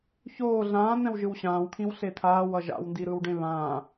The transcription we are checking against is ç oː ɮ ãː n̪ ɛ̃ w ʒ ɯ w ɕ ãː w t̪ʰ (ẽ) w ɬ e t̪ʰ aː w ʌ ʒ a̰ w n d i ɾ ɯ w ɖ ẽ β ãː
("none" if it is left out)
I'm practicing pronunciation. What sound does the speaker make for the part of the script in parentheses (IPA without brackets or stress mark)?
ĩ